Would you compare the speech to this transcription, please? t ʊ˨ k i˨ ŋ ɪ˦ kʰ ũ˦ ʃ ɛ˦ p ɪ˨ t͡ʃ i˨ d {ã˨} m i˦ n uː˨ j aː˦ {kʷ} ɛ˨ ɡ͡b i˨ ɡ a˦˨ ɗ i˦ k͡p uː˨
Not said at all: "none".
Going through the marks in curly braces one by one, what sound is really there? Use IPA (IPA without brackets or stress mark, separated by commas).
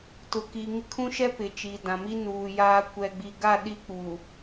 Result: ã˨, kʷ